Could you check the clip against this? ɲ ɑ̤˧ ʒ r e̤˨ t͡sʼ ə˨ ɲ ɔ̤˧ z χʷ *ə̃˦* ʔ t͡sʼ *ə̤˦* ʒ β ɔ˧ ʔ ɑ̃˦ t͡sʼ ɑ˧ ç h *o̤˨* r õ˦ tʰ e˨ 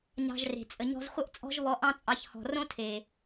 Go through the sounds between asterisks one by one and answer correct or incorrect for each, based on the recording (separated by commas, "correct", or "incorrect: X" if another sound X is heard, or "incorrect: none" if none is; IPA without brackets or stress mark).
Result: incorrect: ə˦, incorrect: ɔ̤˦, incorrect: ɔ̤˨